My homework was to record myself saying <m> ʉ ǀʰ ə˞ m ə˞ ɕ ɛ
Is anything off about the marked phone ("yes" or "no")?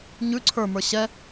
yes